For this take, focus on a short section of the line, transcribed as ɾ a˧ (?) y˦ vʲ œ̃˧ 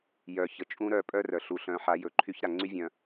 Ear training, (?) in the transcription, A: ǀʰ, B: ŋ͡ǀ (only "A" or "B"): B